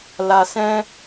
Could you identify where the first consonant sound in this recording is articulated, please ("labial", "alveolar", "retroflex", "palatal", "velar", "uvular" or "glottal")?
alveolar